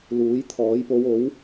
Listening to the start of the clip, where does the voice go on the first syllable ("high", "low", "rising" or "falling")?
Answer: rising